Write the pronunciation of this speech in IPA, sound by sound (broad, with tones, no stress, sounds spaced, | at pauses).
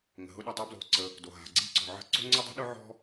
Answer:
ŋ ə̤˩ ɦ ʊ˥ ɗ ɐ˩ tˤ o˥ b l o̤˩ ǀ ə˩ | d o˩ ɦ a̤˩ ɡ͡ǀ i̤˥ ǀ ɔ̤˩ ʕ ə̤˥ ǀ o̤˥ ŋ͡ǀ ʊ˥ dˤ ə̤˥ ɗ ʊ˥ ʕ ɔ̤˥